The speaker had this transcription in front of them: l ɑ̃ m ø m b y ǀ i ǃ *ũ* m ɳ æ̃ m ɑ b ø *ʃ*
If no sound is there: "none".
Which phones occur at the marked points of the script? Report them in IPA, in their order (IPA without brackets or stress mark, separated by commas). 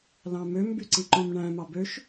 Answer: õ, ʃ